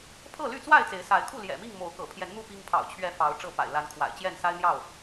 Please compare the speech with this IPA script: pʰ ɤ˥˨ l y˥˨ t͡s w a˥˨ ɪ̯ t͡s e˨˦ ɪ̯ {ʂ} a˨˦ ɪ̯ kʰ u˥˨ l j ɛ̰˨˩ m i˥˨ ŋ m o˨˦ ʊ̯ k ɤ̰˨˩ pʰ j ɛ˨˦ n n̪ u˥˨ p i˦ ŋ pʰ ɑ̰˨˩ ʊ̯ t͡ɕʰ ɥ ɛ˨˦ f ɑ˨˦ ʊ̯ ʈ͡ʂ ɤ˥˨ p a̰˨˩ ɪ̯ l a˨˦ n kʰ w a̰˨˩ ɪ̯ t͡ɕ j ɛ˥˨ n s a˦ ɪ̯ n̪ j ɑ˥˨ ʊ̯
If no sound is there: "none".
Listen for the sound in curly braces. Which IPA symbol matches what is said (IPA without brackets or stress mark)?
s